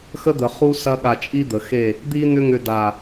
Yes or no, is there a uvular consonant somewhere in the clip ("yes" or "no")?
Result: yes